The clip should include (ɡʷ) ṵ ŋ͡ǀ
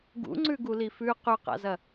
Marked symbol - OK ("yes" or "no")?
no